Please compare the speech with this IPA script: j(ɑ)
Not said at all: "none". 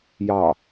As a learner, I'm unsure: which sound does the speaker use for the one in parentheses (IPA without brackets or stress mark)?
ɑ